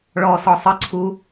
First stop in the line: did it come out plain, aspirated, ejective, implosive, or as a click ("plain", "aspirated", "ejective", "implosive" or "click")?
click